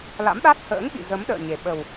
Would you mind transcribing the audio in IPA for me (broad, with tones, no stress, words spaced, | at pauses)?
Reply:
la̰˧˥mɗa˦˥t̚ hə̰ː˧˥ŋɓḭ˧˨ zə˨˦mɗə̰ː˧˨ɲe˨˩ ɓə˨˩w